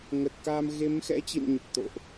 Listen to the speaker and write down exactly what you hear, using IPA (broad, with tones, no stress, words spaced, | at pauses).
ŋə˨˩t̚kaː˧m ɣe˨˦mxɛ̰˧˥t͡ɕḭ˧˨n ɲə˨˩p̚t̪o̰˧˨ʔ